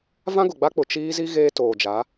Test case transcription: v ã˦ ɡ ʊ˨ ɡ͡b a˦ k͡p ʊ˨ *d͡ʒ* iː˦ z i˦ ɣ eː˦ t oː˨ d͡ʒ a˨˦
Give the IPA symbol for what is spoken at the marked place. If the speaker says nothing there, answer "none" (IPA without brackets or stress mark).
t͡ʃ